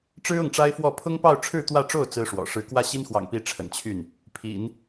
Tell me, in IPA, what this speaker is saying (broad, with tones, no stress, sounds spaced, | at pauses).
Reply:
ʈ͡ʂ ɻ̩˥ ʊ˥˩ ŋ ʈ͡ʂ a˥ ɪ̯ f w ɔ˥˩ pʰ ʊ˥ ŋ p ɑ˥˧ ʊ̯ ʈ͡ʂʰ ɻ̩˥˧ t̪ w ä˥˧ ʈ͡ʂ o˥˩ ʊ̯ t͡s ɹ̩˥ ʂ w ɔ̰˨˩ ʂ ɻ̩˧˥ k w ä˥˩ ɕ i˥ n x w ɑ̰˨˩ ŋ p i˧˥ ʈ͡ʂʰ ə̰˨˩ n t͡ɕʰ y˥˩ n | pʰ ḭ˨˩˦ n